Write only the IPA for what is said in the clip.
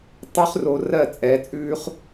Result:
tˤʉ˦χro˧rɜ˦˨t͡sʼɛ˨˦ t͡sʼʉː˦χ

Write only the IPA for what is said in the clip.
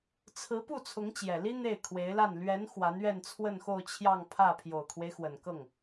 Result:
t͡sʰɹ̩˧˥pu˥˩ t͡sʰʊ˧˥ŋt͡ɕjɛ˨˩li˥ n̪e˥˩ɪ̯kʰwe˧˥ɪ̯la˥˩n lɥɛ˧˥n xwa˧˥nɥɛ˥˧nt͡sʰwə˥˧nxo˥˧ʊ̯ t͡ɕʰjɑ˥˧ŋpʰä˥˩ pʰjo˨˩ʊ̯kʰwe˦ɪ̯xwə˨˩n kɤ˥˩ŋ

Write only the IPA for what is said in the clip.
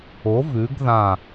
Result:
o˨˥ vʉ˨˥ɡðã˦˨

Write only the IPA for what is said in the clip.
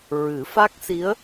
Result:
ɹɨ˨˩˦fa˦˥k̚si˧˥ə̯

